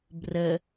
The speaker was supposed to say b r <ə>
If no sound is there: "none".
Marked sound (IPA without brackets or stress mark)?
ə